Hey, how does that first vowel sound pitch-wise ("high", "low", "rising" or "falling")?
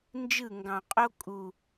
falling